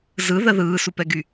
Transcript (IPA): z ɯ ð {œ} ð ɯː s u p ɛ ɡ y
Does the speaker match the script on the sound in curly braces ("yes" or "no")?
no